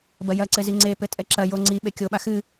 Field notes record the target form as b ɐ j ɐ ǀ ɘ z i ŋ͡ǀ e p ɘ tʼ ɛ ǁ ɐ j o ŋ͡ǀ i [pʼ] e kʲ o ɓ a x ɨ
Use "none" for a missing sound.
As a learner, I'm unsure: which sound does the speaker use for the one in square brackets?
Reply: ɓ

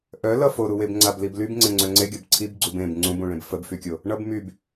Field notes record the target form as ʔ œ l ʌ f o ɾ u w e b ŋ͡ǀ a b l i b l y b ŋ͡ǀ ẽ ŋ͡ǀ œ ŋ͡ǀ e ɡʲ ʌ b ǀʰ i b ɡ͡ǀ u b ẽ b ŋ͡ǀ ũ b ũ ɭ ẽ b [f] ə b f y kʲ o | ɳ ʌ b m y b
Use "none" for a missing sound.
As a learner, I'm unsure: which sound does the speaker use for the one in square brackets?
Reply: f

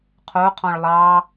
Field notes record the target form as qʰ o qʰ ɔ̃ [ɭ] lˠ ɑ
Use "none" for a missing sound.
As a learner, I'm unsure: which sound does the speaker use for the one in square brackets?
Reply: ɭ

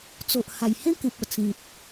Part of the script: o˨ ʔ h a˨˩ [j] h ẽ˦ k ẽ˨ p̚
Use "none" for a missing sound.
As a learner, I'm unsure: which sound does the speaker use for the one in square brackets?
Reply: j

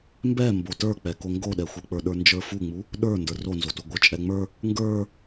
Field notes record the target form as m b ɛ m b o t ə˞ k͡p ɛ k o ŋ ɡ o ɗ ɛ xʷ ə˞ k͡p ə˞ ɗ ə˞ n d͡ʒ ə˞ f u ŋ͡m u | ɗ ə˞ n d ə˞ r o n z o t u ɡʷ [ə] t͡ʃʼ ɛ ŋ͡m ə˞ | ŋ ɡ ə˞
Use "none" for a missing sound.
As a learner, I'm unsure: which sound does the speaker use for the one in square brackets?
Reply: ə˞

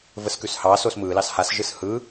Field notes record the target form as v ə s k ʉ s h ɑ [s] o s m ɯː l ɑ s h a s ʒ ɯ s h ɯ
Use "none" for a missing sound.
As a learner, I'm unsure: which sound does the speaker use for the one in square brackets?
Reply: s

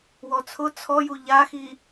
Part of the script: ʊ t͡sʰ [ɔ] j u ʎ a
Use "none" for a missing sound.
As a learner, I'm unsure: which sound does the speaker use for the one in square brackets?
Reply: ɔ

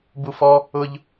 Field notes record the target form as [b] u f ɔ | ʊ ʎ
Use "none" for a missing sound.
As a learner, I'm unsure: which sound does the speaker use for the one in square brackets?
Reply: b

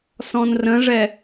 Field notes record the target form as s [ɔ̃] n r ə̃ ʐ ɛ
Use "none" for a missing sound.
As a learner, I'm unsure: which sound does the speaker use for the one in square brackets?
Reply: ɔ̃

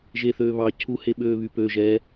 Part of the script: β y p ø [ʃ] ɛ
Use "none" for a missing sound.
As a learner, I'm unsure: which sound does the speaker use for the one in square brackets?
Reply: ʒ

